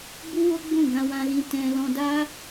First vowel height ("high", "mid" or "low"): high